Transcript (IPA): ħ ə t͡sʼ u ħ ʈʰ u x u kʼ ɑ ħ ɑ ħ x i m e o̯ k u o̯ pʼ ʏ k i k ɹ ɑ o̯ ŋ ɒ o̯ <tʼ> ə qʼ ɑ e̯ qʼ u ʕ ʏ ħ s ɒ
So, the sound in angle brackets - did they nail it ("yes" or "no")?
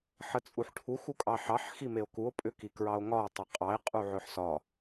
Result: no